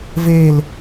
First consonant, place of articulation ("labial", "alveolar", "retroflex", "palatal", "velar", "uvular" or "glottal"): labial